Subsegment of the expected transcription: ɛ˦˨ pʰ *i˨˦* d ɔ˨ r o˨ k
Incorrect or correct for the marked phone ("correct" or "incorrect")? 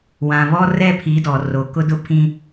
correct